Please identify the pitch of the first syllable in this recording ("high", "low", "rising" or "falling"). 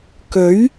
rising